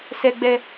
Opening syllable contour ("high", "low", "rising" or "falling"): high